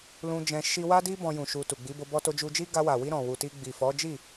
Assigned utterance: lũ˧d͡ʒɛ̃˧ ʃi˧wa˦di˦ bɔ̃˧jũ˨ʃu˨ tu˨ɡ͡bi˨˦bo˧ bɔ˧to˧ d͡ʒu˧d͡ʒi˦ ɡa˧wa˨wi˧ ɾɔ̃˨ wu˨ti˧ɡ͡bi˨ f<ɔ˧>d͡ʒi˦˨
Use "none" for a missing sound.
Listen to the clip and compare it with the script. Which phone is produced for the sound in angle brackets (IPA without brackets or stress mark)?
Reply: ɔ˨˦